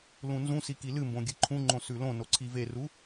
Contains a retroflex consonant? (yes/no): no